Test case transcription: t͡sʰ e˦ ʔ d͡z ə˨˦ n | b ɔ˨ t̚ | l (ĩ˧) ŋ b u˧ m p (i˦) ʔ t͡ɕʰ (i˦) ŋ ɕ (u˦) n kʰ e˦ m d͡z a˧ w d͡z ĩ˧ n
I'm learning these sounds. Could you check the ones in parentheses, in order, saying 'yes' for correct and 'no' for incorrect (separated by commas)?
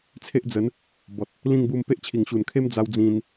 no, no, no, no